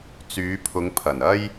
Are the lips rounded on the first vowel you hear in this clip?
yes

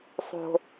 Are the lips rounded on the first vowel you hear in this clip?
yes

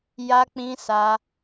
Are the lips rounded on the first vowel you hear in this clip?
no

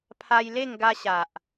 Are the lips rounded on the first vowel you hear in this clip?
no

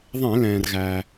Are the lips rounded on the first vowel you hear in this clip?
no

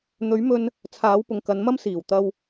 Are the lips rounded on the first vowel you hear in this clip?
yes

